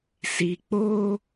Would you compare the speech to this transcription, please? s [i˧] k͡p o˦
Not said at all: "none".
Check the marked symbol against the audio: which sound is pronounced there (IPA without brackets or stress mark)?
i˧